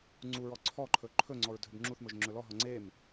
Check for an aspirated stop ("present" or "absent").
present